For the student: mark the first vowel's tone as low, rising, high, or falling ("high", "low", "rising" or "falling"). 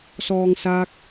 low